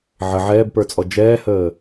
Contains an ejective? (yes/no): yes